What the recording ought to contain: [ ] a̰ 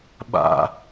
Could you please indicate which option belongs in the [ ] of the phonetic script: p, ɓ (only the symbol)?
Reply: ɓ